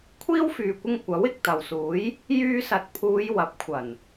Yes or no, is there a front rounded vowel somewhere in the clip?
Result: yes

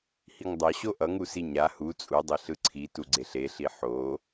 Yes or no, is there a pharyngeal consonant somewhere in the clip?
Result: yes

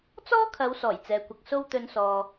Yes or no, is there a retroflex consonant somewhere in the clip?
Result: no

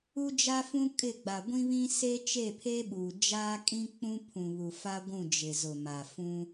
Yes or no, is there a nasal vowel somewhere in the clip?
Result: yes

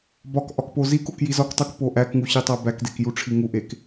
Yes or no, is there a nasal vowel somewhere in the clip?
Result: no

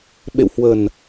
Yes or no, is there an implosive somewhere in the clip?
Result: yes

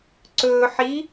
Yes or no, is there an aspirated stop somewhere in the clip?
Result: no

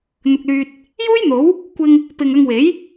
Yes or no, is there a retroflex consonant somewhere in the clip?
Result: no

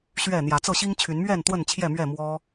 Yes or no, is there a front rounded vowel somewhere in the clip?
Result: yes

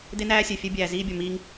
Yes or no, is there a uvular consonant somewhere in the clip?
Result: no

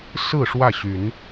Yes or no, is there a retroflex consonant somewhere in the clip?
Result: yes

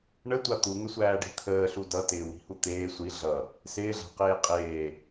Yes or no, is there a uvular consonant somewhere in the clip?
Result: yes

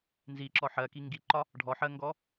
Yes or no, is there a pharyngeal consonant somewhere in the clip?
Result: yes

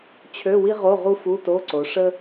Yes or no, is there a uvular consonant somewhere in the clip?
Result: yes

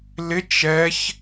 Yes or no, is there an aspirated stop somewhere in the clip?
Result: no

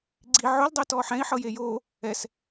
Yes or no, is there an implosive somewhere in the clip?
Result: no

